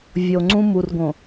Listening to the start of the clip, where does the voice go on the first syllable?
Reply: low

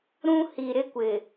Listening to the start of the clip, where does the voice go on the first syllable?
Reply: high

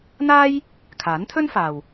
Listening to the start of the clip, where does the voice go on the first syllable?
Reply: high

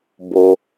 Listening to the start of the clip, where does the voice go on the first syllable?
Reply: low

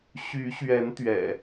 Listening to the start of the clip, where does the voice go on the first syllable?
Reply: rising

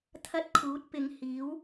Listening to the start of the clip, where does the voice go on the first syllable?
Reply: high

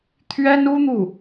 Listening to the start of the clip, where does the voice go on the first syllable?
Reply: high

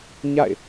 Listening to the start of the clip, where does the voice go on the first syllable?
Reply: falling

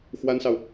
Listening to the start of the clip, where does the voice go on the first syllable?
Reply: high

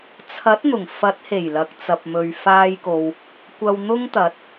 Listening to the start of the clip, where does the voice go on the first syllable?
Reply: rising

